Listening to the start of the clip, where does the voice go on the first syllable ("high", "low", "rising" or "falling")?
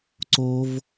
high